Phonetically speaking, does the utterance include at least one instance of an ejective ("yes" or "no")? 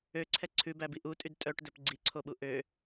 yes